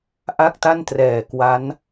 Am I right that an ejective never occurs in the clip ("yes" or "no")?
yes